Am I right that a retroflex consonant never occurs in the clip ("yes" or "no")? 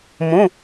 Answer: yes